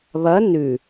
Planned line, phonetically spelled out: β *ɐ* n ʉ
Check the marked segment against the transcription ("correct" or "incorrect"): correct